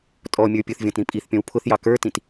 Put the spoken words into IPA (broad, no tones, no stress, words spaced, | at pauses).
tʼɔmʲə˞ pʲʊθvʲɔ̃tɾĩ pʼiθpʲɔ̃w pʰʊθjɑ kə˞tĩt